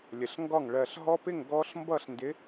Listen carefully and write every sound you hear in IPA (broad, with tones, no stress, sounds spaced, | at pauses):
lʲ ə˨˩ ɬ ŋ ɡ ɒ˥˨ ŋ ɭ ɜ˨˩ ɬ ɦ ɔ˦˥ p ɪ˥˨ ŋ ɡ ɔ˦˥ ɬ m b ʌ˥˨ ɬ n d ɪ˨˥